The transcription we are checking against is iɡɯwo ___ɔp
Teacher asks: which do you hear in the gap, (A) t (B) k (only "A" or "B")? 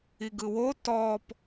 A